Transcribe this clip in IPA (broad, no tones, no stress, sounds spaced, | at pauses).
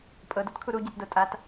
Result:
pʼ ɤ d ɤ t kʰ u ɾ u ɟ e t d o tʼ a t